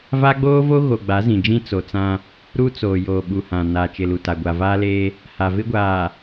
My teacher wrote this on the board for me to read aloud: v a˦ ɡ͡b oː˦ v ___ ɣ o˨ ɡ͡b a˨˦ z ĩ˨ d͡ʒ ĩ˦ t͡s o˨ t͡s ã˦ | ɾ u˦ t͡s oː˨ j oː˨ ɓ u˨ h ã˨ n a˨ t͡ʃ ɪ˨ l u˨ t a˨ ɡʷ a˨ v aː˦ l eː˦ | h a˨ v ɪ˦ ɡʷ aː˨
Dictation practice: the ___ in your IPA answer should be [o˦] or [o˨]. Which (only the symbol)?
o˦